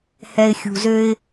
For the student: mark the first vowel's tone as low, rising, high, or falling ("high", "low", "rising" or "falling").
low